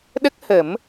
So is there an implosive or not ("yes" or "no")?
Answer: yes